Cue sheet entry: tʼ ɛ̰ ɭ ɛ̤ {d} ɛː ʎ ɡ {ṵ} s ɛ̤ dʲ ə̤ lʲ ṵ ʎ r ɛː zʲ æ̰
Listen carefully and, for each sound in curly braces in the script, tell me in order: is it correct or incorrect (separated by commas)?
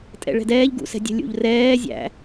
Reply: correct, correct